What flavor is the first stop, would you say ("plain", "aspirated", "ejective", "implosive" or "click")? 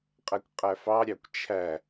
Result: ejective